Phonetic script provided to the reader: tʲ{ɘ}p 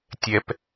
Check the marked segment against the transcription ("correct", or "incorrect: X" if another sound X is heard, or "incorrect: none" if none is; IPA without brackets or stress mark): incorrect: ɛ